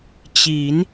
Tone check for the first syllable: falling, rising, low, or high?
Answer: rising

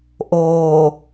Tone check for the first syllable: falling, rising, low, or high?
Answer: low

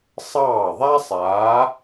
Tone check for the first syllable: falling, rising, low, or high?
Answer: falling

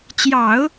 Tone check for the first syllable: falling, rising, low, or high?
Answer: low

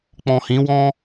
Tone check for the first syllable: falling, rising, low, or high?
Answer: low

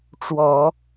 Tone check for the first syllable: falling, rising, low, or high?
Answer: low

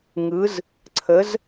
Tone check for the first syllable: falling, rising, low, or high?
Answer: rising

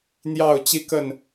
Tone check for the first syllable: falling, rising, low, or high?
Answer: falling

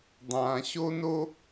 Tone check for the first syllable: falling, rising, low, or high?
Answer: low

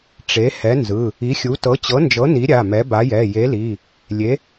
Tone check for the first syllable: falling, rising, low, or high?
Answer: rising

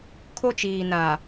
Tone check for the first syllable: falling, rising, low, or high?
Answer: high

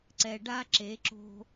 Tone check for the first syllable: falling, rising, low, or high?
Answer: low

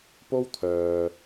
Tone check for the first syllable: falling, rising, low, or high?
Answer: high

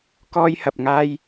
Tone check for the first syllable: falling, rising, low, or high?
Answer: high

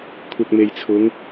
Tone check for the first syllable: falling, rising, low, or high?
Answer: low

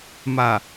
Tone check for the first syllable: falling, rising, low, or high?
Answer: low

